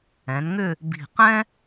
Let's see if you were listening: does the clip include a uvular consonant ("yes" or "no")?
yes